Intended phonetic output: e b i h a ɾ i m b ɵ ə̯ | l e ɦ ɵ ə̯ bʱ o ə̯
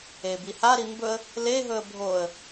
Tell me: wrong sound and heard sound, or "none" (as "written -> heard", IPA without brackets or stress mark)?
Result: none